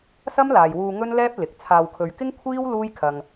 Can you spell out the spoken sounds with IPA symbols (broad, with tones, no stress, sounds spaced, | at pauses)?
s ɐ˥ m l aː˨ j w uː˧ ŋ ɵ˥ n l ɛː˥ p̚ l ɪ˨˥ k̚ t͡sʰ aː˨ w kʰ ɵ˨ ɥ k ɪ˥ ŋ kʷʰ iː˥ w l uː˥ j kʰ ɐ˨ ŋ